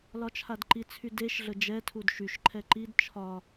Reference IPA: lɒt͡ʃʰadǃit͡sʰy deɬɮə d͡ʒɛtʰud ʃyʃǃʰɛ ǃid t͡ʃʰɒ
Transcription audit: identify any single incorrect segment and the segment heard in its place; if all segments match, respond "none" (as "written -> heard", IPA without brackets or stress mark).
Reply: ɬ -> ʃ